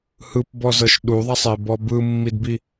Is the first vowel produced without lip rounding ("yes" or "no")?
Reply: yes